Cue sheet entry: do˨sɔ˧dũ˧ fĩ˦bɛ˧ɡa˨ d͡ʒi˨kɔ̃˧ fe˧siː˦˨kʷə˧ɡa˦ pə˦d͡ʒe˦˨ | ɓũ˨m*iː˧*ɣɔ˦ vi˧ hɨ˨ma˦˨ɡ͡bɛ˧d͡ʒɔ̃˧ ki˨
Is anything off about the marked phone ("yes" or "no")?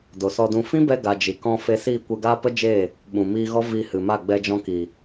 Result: no